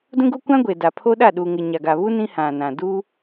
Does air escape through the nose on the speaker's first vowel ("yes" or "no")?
yes